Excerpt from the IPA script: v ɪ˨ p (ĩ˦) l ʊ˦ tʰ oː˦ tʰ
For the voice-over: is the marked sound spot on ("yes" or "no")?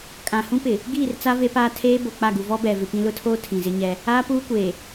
yes